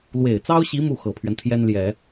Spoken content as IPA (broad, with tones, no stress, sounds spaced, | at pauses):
l w e˨˩ ɪ̯ t͡s ɑ˥ ʊ̯ ɕ i˧˥ m u˥˩ x ɤ˨˩ pʰ ɥ ɛ˦ n t̪ʰ j ɛ˥ n l j ɛ˨˩˦